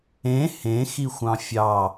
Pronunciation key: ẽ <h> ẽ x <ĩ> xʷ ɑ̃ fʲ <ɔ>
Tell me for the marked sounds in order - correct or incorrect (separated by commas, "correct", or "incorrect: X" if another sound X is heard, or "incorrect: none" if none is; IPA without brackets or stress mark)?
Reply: correct, incorrect: i, incorrect: ɑ